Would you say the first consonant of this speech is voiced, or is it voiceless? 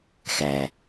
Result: voiceless